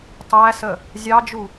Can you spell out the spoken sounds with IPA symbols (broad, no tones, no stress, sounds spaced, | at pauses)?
tˤ æ s ə | zʲ ɑ d͡ʒ u